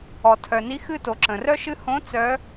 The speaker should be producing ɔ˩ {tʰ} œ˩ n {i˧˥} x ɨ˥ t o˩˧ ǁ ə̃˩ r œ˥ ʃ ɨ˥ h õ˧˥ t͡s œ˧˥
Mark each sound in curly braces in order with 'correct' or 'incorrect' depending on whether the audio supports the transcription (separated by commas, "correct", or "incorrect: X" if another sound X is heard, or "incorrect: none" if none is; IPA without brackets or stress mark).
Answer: correct, correct